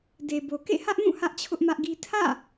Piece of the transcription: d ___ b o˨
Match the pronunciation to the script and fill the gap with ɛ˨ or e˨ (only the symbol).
e˨